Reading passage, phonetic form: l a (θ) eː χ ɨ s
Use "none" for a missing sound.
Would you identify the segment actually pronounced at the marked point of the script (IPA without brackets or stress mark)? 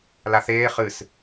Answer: θ